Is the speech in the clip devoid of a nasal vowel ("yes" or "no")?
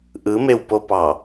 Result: yes